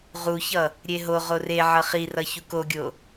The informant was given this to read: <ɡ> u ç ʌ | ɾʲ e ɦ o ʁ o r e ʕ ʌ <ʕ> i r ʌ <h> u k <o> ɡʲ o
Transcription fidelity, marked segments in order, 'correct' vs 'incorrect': incorrect: ʁ, incorrect: χ, incorrect: ç, correct

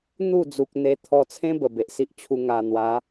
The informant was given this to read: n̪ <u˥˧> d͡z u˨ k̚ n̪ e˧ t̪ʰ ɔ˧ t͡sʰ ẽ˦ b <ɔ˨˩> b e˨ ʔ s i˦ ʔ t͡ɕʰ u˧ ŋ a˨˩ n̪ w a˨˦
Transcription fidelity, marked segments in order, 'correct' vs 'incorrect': correct, incorrect: ə˨˩

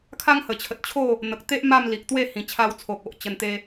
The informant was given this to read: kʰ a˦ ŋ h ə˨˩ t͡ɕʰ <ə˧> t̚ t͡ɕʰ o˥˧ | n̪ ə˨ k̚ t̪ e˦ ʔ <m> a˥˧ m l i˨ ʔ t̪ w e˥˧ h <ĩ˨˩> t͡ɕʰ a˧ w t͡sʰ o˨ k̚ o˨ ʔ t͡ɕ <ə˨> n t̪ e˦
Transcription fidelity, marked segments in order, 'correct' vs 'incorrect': incorrect: ə˨, correct, correct, incorrect: ə˧

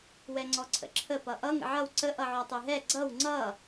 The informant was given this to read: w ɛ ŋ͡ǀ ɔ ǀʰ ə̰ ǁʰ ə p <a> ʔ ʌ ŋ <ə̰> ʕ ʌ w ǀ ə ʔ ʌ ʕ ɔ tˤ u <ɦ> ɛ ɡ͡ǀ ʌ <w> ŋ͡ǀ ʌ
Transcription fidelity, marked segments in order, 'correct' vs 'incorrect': incorrect: ʌ, correct, correct, correct

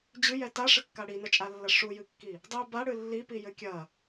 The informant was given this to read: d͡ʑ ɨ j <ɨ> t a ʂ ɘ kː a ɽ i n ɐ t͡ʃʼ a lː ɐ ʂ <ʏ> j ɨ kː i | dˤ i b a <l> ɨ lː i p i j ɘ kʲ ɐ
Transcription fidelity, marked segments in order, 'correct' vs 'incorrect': incorrect: ɛ, incorrect: u, incorrect: ɽ

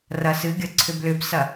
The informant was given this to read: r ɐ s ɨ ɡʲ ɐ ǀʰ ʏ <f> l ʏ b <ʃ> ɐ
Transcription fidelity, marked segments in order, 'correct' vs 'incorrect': incorrect: b, incorrect: s

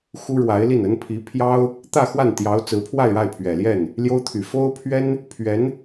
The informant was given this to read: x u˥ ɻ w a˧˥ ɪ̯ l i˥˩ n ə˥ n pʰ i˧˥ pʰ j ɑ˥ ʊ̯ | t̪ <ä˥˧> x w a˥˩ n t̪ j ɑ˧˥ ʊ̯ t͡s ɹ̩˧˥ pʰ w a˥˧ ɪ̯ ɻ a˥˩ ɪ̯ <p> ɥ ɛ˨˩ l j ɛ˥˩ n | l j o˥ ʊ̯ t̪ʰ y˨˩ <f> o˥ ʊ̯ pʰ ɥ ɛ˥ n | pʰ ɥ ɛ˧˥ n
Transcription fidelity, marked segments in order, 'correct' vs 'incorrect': correct, incorrect: pʰ, correct

